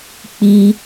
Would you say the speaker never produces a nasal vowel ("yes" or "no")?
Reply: yes